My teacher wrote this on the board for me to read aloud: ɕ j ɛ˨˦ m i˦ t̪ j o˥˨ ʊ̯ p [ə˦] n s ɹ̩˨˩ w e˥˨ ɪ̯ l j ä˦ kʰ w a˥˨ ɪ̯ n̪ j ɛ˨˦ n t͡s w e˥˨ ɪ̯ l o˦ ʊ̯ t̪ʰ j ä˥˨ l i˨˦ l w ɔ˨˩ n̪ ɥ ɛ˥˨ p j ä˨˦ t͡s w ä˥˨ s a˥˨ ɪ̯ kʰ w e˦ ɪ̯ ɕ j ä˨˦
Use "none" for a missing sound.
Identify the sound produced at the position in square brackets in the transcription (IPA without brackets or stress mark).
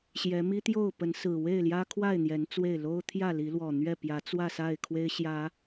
ə˨˦